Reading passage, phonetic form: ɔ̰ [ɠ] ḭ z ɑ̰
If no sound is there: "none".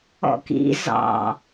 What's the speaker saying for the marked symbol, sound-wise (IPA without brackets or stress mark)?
k